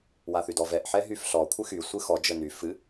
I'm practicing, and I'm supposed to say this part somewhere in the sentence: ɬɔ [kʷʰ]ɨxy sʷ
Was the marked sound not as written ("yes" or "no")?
no